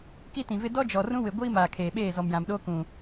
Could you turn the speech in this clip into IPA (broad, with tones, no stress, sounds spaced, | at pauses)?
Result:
k i˦ t ĩ˨ v ɪ˦ d ɔ˦ d͡ʒ ɔ˨ r ũ˦ w ɪ˨ ɡʷ iː˦ m aː˨ kʰ eː˨ ɓ eː˦˨ z ɔ˨ m j ã˨ m ɗ oː˦ k ũ˨